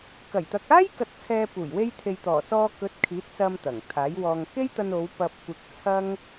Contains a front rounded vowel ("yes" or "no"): no